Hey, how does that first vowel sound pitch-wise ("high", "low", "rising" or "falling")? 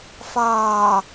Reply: low